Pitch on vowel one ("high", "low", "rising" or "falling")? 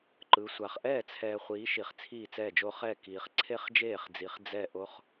rising